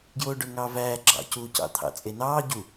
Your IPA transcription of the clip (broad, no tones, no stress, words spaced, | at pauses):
ɡjoːɖøŋɑːvæː ɡ͡ǁɑ̰cuː cɑ̰t̪ʰɑ̰t͡sʼenɑː ɟu